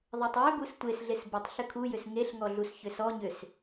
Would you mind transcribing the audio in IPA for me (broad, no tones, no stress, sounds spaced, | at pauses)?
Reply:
ðˤ e tˤ j ʏ b u s tʷ e s ɮ e s b u tˤ ɬ ʏ kʰ u j ʏ s ŋ e ɬ ŋ ɔ ɮ u s ç ʏ s ɔ ɲ ʏ s